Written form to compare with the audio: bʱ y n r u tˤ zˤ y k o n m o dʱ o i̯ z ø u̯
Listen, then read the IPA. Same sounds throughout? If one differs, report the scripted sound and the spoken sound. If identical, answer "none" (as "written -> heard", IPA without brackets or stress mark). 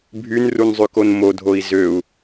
tˤ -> n